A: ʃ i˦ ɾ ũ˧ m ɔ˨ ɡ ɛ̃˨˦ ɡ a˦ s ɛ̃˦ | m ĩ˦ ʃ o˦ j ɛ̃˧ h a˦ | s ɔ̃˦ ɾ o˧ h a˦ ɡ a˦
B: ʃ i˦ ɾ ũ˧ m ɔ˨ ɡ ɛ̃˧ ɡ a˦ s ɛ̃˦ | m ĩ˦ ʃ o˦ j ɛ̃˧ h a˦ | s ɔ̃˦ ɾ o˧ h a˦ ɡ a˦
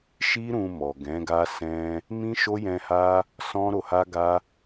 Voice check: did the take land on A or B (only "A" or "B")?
A